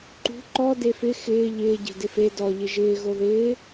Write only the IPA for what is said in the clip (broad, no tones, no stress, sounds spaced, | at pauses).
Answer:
ǃ ṳ ǃ ɔ d e f ɪ x ɪː ʎ ɪː ɟ e̤ d ɪ f e d ɔ ʎ ɪ ʒ ɪː ɣ o ð ɪː